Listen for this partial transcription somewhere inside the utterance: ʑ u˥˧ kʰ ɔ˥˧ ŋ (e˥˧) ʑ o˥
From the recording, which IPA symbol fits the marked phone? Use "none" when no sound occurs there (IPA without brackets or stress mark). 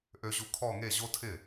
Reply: e˥˧